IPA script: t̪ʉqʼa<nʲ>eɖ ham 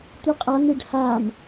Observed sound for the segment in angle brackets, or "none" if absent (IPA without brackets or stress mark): n̪